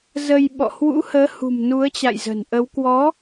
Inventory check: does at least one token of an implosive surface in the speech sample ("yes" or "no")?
yes